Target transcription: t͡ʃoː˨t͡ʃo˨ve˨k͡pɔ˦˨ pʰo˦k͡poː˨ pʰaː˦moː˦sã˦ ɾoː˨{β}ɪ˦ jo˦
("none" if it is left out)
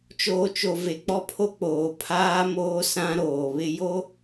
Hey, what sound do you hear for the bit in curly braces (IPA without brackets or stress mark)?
β